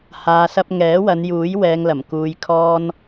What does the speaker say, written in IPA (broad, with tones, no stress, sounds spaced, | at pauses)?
h aː˧ s ɐ˥ p̚ ŋ ɛː˨˥ w ɐ˨˧ n j uː˨˥ j w ɛː˧ ŋ l ɐ˨˩ m k uː˧ j kʰ ɔː˥ n